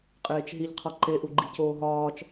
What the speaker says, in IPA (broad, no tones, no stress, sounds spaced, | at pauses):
qʼ eː t͡ʃ ɦ i ʎ qʰ ɒ ǃ e ʔ u ɡ͡ǃ i c oː ɦ ɒː t͡ʃ